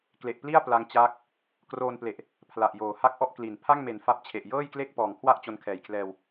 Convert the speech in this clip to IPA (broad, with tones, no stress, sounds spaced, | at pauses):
k l e˨˩ ʔ p l i˥˩ a̯ p l a˧ ŋ t͡ɕ aː˦˥ k̚ | k r oː˧ n p l e˨˩ ʔ | pʰ l a˨˩ ʔ j oː˨˩ h a˥˩ k̚ ʔ ɔ˥˩ ʔ k l i˩˦ n pʰ a˥˩ ŋ m e˨˩ n f a˦˥ p̚ t͡ɕʰ e˨˩ ʔ j ɤː˥˩ j k l e˥˩ k̚ p ɔː˨˩ ŋ kʰ w a˥˩ ʔ t͡ɕ o˦˥ n kʰ ɛː˨˩ j kʰ l ɛː˧ w